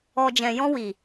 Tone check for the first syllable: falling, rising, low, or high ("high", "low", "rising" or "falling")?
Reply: low